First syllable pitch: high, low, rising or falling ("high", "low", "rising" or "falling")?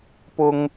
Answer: high